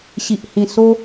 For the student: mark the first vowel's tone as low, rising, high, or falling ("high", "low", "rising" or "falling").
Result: low